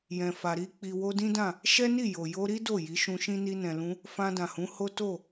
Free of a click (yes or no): yes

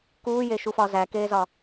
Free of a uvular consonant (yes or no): yes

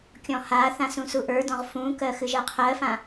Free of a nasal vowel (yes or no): no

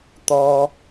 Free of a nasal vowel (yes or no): yes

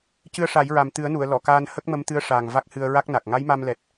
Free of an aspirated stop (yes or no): yes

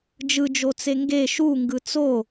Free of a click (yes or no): yes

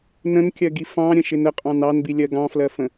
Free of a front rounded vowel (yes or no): yes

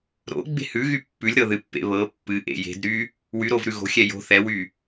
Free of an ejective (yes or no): yes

